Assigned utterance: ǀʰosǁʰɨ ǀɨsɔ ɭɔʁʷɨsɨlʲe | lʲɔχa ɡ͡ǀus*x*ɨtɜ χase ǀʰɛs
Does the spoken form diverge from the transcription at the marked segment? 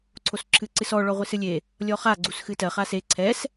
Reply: no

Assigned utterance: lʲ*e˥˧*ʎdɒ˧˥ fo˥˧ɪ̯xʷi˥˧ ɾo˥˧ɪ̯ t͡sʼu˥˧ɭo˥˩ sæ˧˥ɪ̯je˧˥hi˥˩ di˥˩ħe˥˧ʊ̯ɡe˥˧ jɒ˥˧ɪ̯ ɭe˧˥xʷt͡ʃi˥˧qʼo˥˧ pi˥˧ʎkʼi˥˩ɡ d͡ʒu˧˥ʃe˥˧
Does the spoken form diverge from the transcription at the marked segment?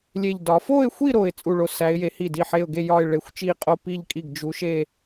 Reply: no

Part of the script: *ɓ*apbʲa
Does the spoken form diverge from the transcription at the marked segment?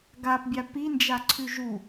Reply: yes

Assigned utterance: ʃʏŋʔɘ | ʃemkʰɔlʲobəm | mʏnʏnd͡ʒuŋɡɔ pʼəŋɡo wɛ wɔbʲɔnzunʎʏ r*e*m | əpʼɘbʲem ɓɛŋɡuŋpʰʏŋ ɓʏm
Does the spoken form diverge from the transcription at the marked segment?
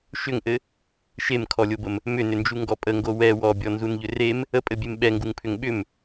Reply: no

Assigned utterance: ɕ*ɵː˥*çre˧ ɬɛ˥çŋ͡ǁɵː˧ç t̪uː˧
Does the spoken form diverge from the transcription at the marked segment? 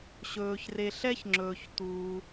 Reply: yes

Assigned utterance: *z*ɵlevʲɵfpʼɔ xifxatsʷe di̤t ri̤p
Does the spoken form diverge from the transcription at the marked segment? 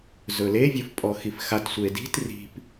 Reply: no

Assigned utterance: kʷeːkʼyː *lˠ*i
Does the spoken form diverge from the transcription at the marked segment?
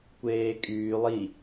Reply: no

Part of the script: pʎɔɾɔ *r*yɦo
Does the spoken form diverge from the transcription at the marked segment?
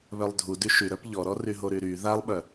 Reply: no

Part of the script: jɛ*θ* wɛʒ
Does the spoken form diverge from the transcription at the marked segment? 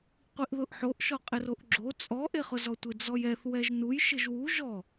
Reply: no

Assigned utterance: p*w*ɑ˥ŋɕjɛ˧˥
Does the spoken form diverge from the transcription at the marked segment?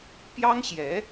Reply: yes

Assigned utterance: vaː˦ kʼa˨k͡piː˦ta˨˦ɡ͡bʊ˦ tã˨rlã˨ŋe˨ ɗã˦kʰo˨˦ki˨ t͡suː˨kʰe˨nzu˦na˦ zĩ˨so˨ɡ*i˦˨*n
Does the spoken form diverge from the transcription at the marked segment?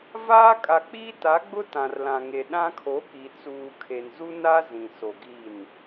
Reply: no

